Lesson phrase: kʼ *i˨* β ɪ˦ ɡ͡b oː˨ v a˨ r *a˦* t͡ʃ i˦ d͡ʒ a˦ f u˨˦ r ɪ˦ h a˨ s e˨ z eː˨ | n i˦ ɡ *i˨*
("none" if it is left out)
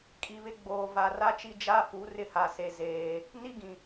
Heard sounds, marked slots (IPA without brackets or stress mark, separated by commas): i˨, a˦, ĩ˨